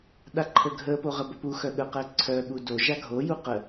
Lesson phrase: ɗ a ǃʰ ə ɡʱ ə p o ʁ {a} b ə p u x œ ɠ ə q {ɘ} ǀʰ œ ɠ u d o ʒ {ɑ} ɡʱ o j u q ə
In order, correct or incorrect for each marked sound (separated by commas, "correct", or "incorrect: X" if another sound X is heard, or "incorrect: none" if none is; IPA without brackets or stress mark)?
incorrect: ə, incorrect: ɛ, incorrect: a